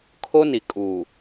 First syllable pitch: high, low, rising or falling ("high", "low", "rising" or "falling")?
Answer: high